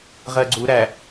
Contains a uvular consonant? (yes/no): yes